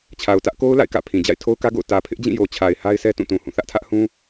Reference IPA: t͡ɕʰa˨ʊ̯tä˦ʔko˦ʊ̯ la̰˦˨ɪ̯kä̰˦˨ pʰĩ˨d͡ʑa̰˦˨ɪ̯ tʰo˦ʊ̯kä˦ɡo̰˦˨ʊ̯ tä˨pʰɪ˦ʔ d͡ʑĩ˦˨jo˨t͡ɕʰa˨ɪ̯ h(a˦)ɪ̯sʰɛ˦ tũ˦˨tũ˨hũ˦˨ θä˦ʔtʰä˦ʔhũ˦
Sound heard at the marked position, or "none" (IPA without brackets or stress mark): a˦